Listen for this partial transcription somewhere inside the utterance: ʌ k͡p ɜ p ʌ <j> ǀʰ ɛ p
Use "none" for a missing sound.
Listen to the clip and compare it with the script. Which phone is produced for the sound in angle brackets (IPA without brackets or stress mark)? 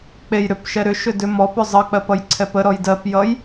j